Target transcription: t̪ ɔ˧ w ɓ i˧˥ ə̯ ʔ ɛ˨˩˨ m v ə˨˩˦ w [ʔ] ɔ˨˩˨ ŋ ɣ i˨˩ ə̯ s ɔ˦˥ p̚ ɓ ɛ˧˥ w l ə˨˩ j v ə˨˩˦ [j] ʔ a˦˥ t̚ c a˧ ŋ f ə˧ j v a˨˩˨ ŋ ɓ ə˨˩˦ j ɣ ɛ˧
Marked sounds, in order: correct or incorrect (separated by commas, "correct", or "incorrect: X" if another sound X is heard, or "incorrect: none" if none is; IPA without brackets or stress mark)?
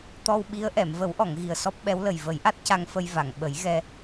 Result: correct, correct